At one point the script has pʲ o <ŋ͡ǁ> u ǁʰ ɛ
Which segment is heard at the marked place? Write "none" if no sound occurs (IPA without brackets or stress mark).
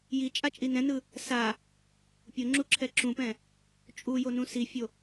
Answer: ŋ͡ǁ